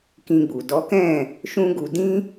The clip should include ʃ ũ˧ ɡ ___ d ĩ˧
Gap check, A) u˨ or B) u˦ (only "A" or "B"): A